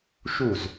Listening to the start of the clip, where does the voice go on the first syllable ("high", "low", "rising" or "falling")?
falling